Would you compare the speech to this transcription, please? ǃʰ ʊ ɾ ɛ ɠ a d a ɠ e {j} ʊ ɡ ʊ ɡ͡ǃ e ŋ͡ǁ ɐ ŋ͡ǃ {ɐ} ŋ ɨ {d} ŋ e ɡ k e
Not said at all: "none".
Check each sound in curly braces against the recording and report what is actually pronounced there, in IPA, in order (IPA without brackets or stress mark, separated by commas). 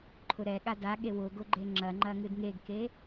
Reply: w, ɐ, d